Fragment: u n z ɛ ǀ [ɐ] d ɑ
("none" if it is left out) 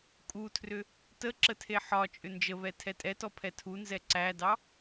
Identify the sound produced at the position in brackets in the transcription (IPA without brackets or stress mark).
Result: æ